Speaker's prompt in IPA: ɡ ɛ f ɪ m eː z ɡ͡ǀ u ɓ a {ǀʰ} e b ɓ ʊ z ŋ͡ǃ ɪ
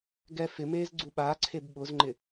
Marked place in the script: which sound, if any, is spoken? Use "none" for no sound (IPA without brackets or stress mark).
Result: ǀʰ